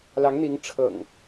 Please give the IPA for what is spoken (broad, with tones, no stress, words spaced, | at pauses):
lɑ˨˦ŋn̪i˨˦ŋ ʈ͡ʂʰɤ̰˨˩ŋ